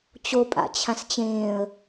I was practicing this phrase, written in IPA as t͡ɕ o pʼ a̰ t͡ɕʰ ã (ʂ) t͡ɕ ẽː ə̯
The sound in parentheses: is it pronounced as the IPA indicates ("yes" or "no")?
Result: no